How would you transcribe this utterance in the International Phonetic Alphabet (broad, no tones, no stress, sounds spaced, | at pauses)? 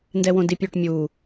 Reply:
n d ɛ w õ d i pʲ ø ʈ mʲ u